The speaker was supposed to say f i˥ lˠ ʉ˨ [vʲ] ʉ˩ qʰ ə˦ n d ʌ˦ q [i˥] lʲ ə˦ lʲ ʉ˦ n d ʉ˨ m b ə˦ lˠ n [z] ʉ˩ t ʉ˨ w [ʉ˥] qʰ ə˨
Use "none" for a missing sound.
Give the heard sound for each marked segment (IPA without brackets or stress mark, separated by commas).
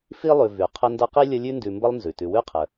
v, i˥, z, ʉ˥